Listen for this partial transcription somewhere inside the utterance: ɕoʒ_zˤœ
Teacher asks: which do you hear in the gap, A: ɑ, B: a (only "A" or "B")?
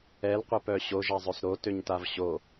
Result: B